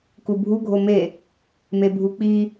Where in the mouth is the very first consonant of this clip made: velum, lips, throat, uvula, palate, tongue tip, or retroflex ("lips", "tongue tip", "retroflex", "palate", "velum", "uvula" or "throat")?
velum